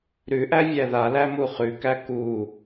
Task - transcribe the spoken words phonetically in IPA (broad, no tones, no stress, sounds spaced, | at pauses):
ɾ ʉ ʔ æ vʲ æ ð a l æ m u χ ʉ k æ k u